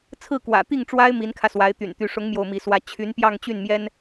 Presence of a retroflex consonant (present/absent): present